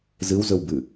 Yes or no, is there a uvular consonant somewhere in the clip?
no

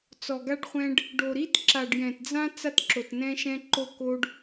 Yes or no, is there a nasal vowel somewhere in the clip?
yes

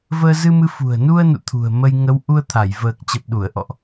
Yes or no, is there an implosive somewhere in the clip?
yes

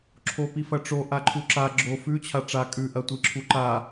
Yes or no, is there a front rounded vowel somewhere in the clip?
no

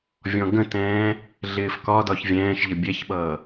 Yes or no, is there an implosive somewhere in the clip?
yes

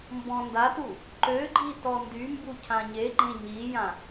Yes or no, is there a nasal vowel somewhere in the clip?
yes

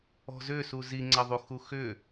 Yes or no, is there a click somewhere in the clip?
yes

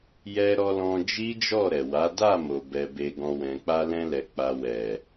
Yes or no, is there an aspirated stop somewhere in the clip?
no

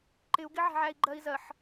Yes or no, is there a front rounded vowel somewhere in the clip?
no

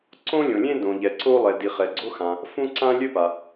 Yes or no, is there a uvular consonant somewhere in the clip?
yes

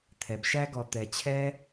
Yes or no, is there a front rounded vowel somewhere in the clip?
no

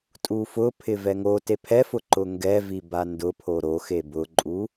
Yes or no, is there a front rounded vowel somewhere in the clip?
no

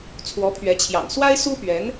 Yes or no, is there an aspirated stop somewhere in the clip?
yes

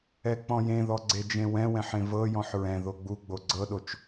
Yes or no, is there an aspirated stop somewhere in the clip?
no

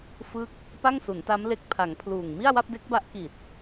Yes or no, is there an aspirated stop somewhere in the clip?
yes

